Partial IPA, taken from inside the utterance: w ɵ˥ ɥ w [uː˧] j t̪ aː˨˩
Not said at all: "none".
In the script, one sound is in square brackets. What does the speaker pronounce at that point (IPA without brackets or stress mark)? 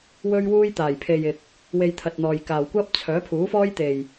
uː˥